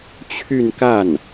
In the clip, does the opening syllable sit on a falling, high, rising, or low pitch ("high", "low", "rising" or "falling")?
falling